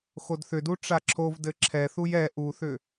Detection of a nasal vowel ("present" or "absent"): absent